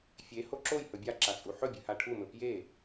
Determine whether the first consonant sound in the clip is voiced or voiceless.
voiceless